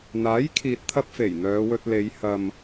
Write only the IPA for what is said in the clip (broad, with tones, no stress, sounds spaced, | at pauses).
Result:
n̪ aː˨˥ j kʰ iː˨ t̚ t̪ʰ ɐ˧ p̚ f e˨˩ j n̪ œː˨˧ w ɵ˧ t̚ l e˨˧ j h ɐ˨ m